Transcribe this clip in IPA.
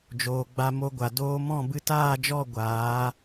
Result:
d͡ʒ oː˨ ɡ͡b a˧ m o˧ ɡʷ a˨ d oː˧ m ɔ̃˦˨ b ɨ˧ t aː˦˨ d͡ʒ ɔ˦˨ ɡʷ aː˨˦

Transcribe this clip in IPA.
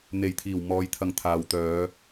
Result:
n̪ e˨˩ j t̪ʰ iː˨˩ w m ɔː˨ j t̪ʰ ɐ˧ ŋ t̪ʰ aː˨ w t̪ œː˨˧

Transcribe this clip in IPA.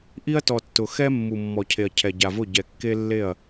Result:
ʔ i˦ ɐ̯ t ɔ˨ tː ʊ˨ x ɛ˦ mː u˨ mː ɔ˨ cʰ e˨ ɐ̯ cʰ ɛ˨ ɟ a˨ v ʊ˦˨ ɟ ɛ˨ kː e˦ lː e˦˨ ɐ̯

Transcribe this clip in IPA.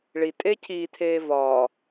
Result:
ɭ i tʼ eː cʰ iː tʰ eː v ɒː

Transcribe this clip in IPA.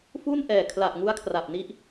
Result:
f u˥˩ n ʔ ɛː˨˩ kʰ l a˨˩ ʔ ŋ u˦˥ a̯ kʰ r a˨˩ p̚ n i˦˥ ʔ

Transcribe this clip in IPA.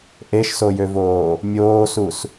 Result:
ʔ e ʃ s o j ø v oː | mʲ oː s u s

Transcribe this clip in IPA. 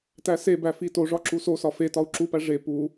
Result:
t æ s e b æ f i t o ʐ ɒ ǁ u s o s ɒ f e t ɒ u̯ ǁ u p æ ʐ e p u

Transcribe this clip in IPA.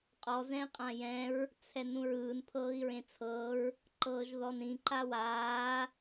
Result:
qʼ ɔ z ɛ̃ i̯ qʼ ã j ɛ̃ ɹ | t͡sʰ ɛ n ũ ɹ ɯː n pʰ ɤː i̯ ɹ ẽ t͡sʰ ɤ ɹ | ǃ ɤː ʒ ð ɔ n ɾ ĩ ǃ a w aː

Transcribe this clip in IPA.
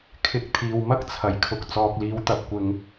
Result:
kʰ ɪ˨˥ k̚ t̪ʰ iː˨ w m ɐ˥ k̚ t͡sʰ ɐ˨˩ j kʰ ʊ˨ k̚ t͡s ɔː˨ k̚ l iː˨˥ w t̪ ɐ˧ p̚ kʷ ɪ˨ ŋ

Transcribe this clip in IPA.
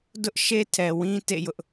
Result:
d ʊ˦ ʔ ʃ e˦ tʰ ɛ˨ w ĩ˦ t ḛ˦˨ j ʊ˦ ʔ

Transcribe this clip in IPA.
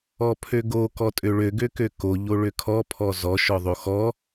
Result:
ɔ pʰ ø ɡ o k ɔ tʼ ø ɭ ø ɡ ø k ø k o ʎ o ɭ ø kʰ ɔ pʰ ɔ z ɔ ʃ ɔ ðˤ o x ɔ

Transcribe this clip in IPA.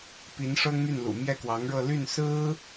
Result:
p i˧˥ n ʂ ɤ˥ ŋ m y˥˩ n l ṵ˨˩ m j ɛ˥˩ k w ɑ˧˥ ŋ ɻ ɤ˥˧ l y˥˩ n s ɹ̩˥

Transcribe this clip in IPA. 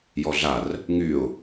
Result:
j ɔ ɮ a r | ŋ y ʊ̯

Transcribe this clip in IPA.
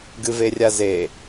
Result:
ɡ ɨ v e rʲ a z e

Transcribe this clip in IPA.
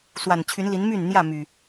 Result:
s w a˨˩ n t͡ɕʰ y˨˦ n l i˨˦ n m y˥˨ n n̪ j ä˥˨ m y˨˩

